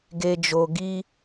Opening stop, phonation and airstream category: plain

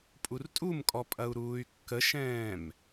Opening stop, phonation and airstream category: ejective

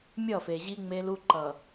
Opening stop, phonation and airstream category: click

